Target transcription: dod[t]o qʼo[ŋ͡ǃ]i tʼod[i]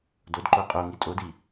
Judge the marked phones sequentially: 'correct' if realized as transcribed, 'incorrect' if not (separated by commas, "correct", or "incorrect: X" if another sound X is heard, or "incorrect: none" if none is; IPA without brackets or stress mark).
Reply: incorrect: ǃ, incorrect: ŋ, correct